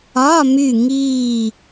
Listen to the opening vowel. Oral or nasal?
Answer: oral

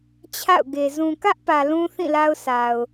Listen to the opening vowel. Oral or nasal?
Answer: oral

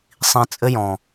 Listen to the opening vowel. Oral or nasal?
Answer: nasal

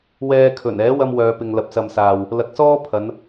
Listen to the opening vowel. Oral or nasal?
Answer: oral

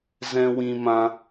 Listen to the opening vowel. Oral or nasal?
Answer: nasal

